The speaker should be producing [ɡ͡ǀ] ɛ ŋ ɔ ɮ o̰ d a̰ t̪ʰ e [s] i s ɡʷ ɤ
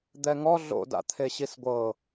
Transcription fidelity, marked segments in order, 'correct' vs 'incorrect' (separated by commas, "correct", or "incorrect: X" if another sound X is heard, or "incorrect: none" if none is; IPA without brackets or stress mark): incorrect: d̪, incorrect: ɕ